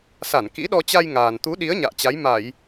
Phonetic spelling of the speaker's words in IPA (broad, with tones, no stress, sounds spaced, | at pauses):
s a˧˩ n k ḭ˧˥ ɗ ɔ˧ t͡ɕ a˧ j ŋ aː˨˩ n t̪ u˨˦ ɗ i˨˦ ə̯ ɲ a̰ː˧˨ t͡ɕ a˨˦ j m a˧˩˨ j